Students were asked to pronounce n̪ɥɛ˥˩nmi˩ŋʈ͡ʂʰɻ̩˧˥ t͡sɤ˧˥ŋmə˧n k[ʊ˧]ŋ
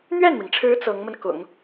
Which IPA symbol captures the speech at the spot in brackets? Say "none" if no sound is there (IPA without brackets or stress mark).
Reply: ʊ̰˨˩˦